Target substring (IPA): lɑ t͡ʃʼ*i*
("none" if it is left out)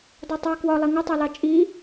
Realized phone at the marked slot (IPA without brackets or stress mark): i